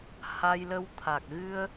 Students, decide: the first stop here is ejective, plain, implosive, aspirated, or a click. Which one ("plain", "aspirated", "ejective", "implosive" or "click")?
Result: aspirated